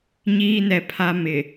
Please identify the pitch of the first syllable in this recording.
high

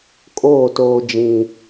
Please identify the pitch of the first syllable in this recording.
falling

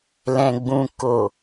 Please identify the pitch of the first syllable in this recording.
low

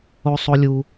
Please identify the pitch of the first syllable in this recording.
high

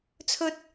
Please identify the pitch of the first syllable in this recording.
rising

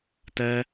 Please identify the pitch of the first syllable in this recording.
high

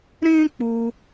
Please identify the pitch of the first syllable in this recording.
high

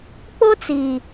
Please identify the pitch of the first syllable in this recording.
high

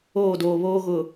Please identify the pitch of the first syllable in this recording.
falling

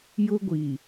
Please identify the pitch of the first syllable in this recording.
high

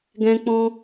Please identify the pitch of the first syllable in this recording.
high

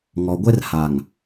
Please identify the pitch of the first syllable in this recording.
low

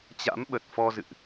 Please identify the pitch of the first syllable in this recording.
rising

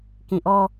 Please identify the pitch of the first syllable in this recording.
low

